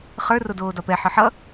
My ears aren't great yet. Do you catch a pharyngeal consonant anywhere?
yes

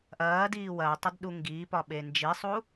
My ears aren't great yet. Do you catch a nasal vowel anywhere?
no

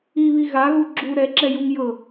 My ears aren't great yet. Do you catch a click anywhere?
yes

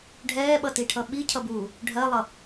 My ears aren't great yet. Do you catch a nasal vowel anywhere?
no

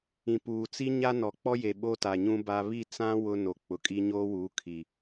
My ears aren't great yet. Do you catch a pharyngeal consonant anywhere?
no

